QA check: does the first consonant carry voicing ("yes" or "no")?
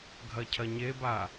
yes